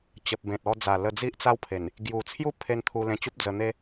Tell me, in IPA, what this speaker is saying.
t͡ɕə˨p̚bẽ˨t̚ ɔ˧d͡za˨˩lə˧ d͡zi˦ʔt͡sa˦wpʰe˨˩n | ɡju˨˩ t͡sʰju˦pʰe˧n t̪ʰu˧lẽ˧t͡ɕu˦p̚d͡zə˧ n̪e˦

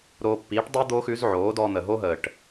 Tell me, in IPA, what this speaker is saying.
ɾoː˧pːiː˨˦ʈ dˤi˦ d̪oː˦xʉ˨˦zʕoː˨˦ dɔː˧n̪ə˨ɦo˦ɦəː˨ʈ

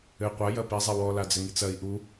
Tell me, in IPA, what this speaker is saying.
ɘ qʷa jɐpi zˤewɔ lad͡zɘŋit͡sɐi̯ ʔu

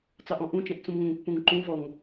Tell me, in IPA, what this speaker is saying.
t͡sɑʔɔ̃ʔũt͡ʃɛ̃ʔ t͡sũmŋə̃ŋpːũŋ ǃũvɔŋ

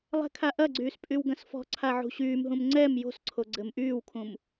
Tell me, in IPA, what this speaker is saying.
lˠɛ̤kʰaʔɐɡ͡ǀyːs pʼywɡɐ̃sfɔ̤ǀʰa ʕṳɕyːmɦũm ŋ͡ǀɛm jo̤sǀʰo ɡ͡ǀɘmʔyːwkʰũm

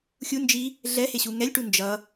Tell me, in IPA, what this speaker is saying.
xʲund͡ʒi | ɮɛheɕu ŋɛlʲʈu nd͡ʒʌ

